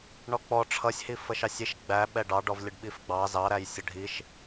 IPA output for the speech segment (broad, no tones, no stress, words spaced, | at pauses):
ɳɔk͡pɔ ʈ͡ʂʰʌsʲhi fəʃɑsʲiʃ ɡ͡bæ ɓɛɖɑɖɔvlʲəɖ ɓifɡ͡bɑ zɑɾæj sʲəɖʱiʃ